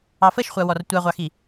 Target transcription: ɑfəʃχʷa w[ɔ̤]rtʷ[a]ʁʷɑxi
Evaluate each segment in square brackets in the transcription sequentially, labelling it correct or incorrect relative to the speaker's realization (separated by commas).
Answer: incorrect, correct